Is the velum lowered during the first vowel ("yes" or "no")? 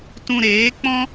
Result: yes